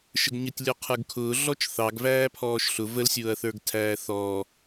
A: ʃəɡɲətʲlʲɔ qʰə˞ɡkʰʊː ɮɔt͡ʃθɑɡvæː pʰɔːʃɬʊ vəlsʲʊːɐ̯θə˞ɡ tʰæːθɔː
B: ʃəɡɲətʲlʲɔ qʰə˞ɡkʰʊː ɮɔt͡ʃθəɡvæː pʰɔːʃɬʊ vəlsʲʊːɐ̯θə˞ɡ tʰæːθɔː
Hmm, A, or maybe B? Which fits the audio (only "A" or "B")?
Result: A